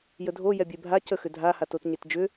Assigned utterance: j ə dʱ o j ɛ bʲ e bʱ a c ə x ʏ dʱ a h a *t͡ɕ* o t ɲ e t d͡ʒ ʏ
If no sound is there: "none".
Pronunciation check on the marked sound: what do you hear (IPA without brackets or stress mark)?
t